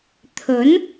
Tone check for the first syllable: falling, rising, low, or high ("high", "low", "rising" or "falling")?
rising